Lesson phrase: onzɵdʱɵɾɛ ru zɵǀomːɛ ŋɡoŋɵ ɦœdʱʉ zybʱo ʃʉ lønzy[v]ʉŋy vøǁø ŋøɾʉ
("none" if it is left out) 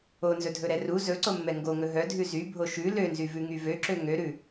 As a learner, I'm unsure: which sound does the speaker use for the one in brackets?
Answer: v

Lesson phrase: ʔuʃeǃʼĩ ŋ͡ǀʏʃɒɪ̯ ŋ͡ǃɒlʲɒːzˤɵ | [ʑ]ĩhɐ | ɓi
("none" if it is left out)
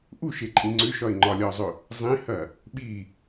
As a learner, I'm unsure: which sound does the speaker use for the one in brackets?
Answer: zˤ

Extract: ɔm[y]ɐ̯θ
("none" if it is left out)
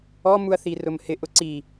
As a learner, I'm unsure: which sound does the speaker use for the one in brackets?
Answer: u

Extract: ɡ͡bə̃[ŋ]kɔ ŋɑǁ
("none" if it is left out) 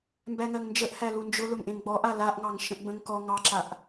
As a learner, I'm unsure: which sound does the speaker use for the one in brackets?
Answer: ŋ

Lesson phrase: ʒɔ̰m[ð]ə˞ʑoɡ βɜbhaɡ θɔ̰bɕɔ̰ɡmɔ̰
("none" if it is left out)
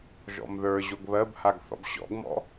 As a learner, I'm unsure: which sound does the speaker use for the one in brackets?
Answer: ð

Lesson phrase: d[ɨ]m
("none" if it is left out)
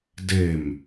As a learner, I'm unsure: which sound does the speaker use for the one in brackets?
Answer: e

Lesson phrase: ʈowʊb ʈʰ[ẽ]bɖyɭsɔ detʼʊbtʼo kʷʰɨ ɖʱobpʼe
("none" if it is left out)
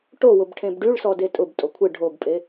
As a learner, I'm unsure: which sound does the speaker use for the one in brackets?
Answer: ẽ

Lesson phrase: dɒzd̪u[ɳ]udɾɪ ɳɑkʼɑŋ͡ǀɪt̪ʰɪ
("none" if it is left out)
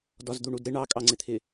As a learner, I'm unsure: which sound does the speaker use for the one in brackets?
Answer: ɳ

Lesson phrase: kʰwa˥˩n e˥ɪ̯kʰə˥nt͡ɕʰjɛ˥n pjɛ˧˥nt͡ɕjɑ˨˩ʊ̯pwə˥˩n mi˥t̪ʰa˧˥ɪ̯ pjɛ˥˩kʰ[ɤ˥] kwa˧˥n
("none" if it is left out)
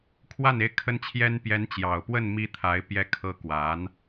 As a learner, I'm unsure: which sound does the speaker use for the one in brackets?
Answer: ɤ˥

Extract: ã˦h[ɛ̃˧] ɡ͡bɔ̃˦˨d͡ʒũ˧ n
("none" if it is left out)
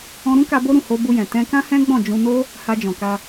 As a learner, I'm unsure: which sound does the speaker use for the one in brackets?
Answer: ɛ̃˦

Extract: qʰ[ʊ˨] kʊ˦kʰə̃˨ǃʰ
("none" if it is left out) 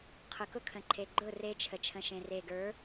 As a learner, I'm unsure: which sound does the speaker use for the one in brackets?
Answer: ʊ˨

